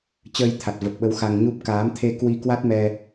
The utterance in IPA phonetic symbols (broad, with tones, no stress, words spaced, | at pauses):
t͡ɕəː˧jt̪ʰa˨˩t̚və˨˩p̚ɓə˨˦w xa˧ŋɲu˦˥p̚ kaː˨˦mt̪ʰe˧ kwi˧kwa˦˥t̚mɛ˧